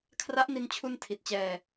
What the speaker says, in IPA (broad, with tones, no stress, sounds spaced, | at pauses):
kʰ r a˦˥ ʔ n i˧ n t͡ɕʰ u˧ n tʰ i˨˩ t̚ t͡ɕ ɛː˧